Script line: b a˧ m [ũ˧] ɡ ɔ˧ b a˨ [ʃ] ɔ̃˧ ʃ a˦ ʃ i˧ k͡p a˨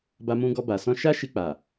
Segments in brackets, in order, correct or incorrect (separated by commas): correct, incorrect